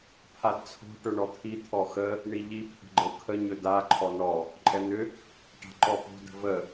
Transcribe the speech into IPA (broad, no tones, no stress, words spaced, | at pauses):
pʰadt͡sʰo̤ ʈɵɳɔt̪ʰi t̪ʰɔxə | ɳiʎi pʰə̤ɡ͡ǃɤkʰə ɲɵda ǃʰɔnɔ | ǃʼɛn̪ʏ | ʈa̤ǃɔpo̤ də̤və